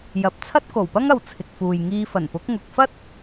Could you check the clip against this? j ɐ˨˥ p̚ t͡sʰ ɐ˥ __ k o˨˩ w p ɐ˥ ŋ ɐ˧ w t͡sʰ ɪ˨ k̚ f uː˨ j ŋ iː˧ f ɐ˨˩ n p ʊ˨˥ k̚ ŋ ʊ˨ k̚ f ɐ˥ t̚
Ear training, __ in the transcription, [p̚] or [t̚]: t̚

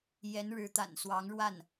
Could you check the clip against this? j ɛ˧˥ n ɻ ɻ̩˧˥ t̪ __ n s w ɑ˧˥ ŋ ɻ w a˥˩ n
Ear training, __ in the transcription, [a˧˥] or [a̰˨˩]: a̰˨˩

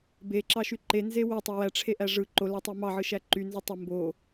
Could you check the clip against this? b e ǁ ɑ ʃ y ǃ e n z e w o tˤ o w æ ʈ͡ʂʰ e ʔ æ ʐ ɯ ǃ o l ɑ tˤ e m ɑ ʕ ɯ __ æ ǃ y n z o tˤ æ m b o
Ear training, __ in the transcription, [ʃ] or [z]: ʃ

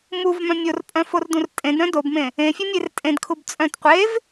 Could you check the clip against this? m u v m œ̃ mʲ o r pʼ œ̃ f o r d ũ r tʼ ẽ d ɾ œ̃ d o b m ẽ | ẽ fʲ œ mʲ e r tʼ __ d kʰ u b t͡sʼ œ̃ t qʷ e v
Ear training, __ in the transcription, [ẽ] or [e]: ẽ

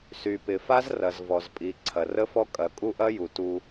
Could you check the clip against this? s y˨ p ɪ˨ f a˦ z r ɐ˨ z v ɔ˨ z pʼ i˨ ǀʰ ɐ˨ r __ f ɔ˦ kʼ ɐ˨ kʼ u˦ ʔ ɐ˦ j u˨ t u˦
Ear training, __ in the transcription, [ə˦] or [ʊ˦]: ə˦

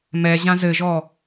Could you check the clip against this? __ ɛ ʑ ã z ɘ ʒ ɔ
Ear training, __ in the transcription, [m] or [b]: m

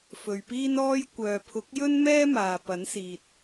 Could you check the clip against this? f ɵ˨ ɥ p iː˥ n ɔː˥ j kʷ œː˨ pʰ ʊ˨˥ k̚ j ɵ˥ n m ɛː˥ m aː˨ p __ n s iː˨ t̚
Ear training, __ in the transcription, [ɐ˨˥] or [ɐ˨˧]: ɐ˨˥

